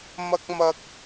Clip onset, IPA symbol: m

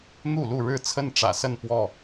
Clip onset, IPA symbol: n̪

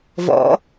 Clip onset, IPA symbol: v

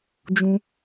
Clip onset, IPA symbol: d͡ʒ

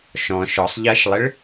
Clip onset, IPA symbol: ʃ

